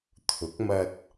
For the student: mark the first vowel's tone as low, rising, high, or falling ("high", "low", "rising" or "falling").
rising